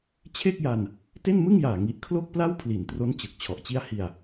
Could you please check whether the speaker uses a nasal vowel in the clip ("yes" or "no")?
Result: no